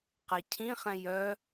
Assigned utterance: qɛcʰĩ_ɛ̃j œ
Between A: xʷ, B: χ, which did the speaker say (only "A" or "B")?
B